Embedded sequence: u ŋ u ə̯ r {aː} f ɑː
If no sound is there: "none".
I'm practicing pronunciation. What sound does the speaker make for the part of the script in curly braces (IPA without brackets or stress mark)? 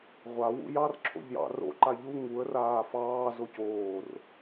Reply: aː